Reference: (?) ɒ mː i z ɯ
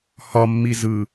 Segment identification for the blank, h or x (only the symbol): h